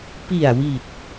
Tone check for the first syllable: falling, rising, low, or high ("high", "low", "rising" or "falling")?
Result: low